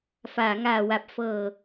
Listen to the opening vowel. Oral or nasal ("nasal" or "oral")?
oral